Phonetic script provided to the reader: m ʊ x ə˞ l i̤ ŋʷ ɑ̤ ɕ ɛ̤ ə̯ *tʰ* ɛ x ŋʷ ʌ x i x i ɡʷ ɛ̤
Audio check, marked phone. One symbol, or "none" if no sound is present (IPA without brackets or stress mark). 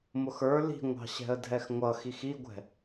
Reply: dʱ